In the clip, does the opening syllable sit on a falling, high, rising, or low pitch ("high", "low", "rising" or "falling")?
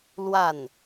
falling